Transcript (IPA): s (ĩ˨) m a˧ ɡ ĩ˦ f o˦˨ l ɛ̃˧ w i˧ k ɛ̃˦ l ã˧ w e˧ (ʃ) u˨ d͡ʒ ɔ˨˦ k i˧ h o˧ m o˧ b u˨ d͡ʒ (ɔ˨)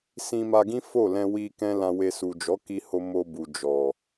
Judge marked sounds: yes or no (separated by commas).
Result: no, no, yes